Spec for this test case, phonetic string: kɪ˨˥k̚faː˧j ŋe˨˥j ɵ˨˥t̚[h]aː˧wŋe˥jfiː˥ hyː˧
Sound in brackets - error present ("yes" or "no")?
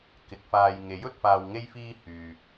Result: yes